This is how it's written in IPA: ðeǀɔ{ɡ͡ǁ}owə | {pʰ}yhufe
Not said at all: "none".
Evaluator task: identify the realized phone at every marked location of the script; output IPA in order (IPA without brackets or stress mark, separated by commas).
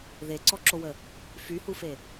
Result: ǁ, f